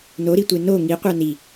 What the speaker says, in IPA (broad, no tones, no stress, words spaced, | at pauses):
noɾitʷe no ŋiqʷa ni